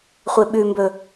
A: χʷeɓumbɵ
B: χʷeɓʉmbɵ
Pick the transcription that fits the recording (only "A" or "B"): B